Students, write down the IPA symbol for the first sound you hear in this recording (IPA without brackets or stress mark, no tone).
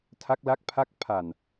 tʰ